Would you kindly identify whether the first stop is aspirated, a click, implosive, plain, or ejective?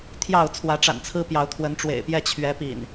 aspirated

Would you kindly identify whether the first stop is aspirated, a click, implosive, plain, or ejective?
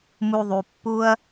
plain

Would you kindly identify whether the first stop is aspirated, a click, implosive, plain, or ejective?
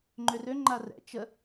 click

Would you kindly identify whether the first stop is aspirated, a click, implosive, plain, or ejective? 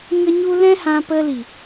plain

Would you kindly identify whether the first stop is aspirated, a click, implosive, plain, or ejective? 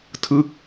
aspirated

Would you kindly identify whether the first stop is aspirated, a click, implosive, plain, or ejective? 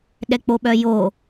implosive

